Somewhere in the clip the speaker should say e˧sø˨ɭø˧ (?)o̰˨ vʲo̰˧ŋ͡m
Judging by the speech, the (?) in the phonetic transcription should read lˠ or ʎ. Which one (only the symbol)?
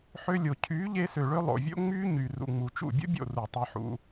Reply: lˠ